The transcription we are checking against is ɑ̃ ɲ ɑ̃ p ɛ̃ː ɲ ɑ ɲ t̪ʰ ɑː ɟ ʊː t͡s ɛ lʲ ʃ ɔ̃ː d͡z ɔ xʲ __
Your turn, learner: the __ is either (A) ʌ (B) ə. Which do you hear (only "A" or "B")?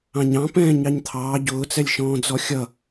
A